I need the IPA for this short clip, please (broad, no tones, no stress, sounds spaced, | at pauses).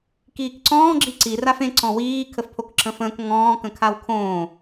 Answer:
k iː k ǀ ɔ̃ː ɡ͡ǁ i ǀ i r a f ẽ ǀ ɔ̃ w iː kʰ ə f pʰ o k ǁʰ ə̃ f ə̃ː k ŋ ɔ̃ː k ə̃ kʰ a w kʰ õː